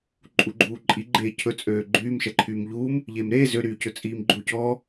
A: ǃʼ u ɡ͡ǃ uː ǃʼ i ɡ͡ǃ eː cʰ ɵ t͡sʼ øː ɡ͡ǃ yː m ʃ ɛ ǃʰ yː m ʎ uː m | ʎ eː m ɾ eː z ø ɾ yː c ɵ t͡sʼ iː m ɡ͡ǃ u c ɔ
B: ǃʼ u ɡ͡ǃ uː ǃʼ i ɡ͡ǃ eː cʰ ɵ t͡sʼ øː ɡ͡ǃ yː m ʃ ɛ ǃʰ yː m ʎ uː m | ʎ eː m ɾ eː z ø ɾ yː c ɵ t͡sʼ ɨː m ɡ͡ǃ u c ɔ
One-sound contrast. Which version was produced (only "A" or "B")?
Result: A